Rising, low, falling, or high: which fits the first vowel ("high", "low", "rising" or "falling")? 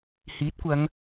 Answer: rising